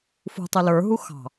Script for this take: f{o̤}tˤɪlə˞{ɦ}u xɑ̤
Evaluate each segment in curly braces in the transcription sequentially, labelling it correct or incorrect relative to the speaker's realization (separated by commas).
incorrect, correct